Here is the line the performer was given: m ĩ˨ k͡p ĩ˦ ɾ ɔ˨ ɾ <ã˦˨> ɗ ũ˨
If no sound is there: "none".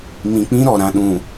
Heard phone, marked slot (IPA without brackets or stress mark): ã˨